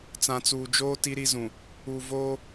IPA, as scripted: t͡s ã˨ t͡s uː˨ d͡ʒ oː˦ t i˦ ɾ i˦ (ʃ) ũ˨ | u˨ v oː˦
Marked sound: incorrect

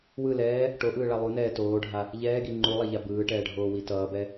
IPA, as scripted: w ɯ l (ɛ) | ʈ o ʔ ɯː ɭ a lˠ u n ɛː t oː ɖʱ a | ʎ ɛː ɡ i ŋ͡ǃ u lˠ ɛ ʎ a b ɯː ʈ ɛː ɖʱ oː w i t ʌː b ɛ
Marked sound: incorrect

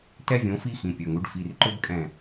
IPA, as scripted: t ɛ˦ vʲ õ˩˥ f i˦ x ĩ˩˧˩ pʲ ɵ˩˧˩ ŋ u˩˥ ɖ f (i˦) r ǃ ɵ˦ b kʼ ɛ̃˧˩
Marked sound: incorrect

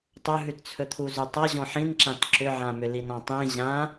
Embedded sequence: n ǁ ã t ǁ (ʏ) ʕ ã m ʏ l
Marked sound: correct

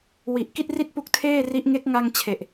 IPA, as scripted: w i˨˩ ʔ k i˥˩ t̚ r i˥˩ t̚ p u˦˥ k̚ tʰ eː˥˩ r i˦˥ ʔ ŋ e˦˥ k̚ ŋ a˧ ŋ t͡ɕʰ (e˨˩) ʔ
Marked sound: correct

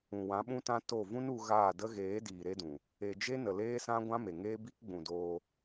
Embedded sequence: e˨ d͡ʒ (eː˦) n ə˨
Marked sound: incorrect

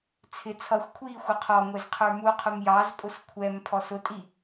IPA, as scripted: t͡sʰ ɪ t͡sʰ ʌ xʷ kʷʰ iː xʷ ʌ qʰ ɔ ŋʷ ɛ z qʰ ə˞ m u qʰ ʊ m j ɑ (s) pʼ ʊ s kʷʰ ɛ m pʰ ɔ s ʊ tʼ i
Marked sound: incorrect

